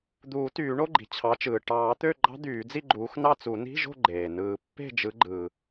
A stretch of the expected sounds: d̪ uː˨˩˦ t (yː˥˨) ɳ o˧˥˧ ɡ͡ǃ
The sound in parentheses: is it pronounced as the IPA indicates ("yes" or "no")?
no